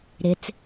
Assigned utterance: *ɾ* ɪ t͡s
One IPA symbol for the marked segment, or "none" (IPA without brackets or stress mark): ɾ